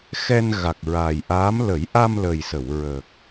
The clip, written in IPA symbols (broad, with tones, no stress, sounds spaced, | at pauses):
x ɛ˧ n ɣ a˨˩ k̚ ɹ aː˨˩ j ʔ aː˧˥ m l ə˨˩˦ j ʔ a˧ m l ə˨˩ j s ə˨˩˨ w ɹ ə˨˩ k̚